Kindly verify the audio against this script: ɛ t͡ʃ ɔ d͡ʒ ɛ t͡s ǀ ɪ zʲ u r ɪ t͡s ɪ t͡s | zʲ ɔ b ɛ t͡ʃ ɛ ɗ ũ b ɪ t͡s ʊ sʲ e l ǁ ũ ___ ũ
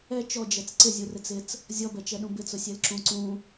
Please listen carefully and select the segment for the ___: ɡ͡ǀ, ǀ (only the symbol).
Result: ǀ